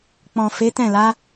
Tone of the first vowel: low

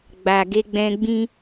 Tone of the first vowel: low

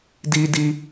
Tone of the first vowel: high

